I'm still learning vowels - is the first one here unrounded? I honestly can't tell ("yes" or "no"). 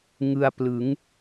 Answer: yes